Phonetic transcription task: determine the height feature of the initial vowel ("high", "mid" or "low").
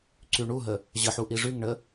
high